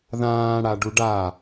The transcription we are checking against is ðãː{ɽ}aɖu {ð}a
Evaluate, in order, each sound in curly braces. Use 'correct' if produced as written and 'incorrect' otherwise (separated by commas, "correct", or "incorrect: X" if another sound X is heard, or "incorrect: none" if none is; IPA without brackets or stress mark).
correct, incorrect: ɖ